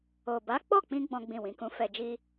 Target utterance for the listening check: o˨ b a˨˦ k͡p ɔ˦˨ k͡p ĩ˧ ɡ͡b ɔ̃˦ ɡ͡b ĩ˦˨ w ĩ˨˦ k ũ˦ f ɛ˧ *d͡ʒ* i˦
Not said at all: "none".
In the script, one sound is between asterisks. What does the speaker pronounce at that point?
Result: d͡ʒ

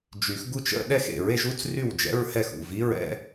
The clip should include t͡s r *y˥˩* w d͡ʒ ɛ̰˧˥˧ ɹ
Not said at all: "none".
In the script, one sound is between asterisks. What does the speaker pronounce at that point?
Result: y˥˩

